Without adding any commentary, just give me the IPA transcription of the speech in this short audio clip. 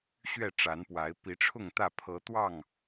ɕ ɥ ɛ˥˨ ʈ͡ʂ a˨˦ n p w a˨˦ ɪ̯ p i˨˦ ʈ͡ʂʰ ʊ˥˨ ŋ t̪ ä˥˨ pʰ ɤ˨˦ t̪ w ɑ˥˨ ŋ

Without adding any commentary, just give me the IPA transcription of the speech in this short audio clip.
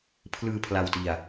pʰ l ɯː˧ pʰ l a˧ w t i˧ a̯

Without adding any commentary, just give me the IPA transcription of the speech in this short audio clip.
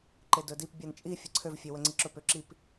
ǃ e d ɵ d i p bʲ a n t͡ʃʼ i fʲ ə ǀʰ ø v fʲ ø w ə ŋ͡ǀ i ǁ ɵ p ʏ ǁ i p

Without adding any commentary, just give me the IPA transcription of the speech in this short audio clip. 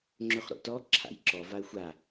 ŋ͡ǁ ʏ χ ɾ o̰ t ɔ ǁʰ a̰ j ǁ ɔ v a ə̯ xʷ a

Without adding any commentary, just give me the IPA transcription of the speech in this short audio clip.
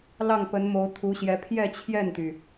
l ɑ˥˩ ŋ p ə˧˥ n m o˧˥ ʊ̯ t̪ʰ u˧˥ ɕ j ɛ˧˥ pʰ j ɛ˥˧ t͡ɕʰ j ɛ˥˩ n t̪ y˩

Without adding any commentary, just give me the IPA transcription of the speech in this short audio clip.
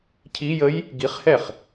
cʰ i j ə j | ɡ i χ h ɛ χ

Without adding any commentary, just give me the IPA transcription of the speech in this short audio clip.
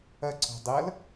ɐ ǀ ɔ̤ dˤ ɐ l

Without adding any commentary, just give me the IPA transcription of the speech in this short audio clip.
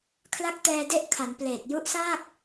kʰ l a˦˥ k̚ t ɛː˧ d e˦˥ ʔ kʰ a˩˦ n p l eː˨˩ t̚ j u˦˥ ʔ s aː˥˩ k̚

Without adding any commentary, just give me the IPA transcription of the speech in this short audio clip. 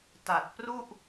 t a˨˩ t̚ p r u˥˩ ʔ

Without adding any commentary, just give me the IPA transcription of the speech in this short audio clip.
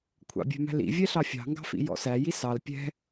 kʷʰ ɑ̰ bʲ ɛ̤ m æ̤ l ḭ vʲ ɛ ɬ ɑ fʲ ɑ̤ ŋ ɡ ɑ̤ f ḭ j ɔ̰ s æ j i s ɑ l pʲ ɛ̤

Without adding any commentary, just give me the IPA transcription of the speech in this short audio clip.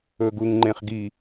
ɵ ɡ u ŋ ŋ͡ǃ ẽ χ ɡ i

